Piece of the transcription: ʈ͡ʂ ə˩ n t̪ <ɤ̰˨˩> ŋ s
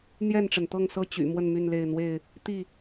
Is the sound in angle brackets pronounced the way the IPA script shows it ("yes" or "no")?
no